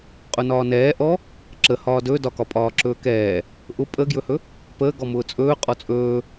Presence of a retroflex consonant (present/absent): absent